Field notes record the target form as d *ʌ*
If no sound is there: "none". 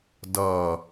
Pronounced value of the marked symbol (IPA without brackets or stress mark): ʌ